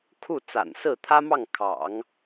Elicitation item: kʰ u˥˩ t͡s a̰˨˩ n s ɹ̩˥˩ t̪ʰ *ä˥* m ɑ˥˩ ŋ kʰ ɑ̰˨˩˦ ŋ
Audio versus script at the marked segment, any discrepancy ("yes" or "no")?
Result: no